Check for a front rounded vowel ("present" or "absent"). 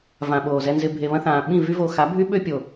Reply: present